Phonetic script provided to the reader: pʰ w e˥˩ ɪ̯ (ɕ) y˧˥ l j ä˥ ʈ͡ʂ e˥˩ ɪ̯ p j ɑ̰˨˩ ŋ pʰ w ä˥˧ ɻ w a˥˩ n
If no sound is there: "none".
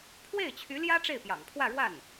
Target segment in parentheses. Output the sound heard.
t͡ɕʰ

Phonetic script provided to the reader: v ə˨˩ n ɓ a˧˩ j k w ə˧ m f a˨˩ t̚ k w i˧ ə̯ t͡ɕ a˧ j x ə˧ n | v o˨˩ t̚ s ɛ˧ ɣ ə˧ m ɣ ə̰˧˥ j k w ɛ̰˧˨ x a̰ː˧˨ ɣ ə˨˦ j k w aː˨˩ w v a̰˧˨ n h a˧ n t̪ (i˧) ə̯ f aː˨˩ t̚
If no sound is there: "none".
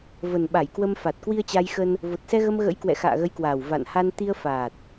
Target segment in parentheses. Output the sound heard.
i˧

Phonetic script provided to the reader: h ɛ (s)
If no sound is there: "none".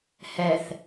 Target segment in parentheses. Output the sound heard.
θ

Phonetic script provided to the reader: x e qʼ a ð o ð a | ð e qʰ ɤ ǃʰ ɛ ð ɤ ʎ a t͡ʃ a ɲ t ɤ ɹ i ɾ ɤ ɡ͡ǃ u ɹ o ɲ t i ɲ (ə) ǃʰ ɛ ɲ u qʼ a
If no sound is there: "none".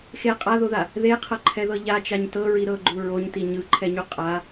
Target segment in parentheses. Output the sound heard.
ɯ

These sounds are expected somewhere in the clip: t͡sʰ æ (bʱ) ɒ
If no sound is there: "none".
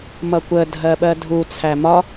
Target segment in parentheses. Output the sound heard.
m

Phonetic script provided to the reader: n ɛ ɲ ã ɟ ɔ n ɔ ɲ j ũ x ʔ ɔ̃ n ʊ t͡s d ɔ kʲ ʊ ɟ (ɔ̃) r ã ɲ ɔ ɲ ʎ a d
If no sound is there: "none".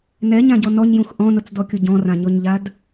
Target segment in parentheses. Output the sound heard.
ɔ̃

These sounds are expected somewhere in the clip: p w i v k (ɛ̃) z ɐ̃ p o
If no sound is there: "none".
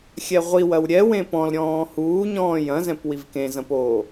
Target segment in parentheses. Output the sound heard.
ẽ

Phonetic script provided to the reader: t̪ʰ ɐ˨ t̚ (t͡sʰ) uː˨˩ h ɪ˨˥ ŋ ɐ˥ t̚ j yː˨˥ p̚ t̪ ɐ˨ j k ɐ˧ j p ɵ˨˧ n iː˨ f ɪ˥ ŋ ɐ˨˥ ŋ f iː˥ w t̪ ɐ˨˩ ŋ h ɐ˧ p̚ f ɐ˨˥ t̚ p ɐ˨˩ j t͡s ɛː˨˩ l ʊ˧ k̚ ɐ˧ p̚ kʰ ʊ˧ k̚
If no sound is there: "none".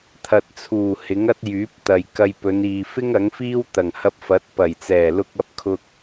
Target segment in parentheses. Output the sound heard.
t͡sʰ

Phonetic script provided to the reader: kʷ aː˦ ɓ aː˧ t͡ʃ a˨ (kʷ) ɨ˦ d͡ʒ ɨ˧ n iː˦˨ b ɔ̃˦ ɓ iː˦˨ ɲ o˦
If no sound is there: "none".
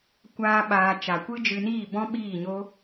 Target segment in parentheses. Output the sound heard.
kʷ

